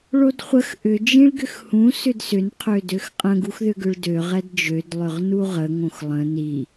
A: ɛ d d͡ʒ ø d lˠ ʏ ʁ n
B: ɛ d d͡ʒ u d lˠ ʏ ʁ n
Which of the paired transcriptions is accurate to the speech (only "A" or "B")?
A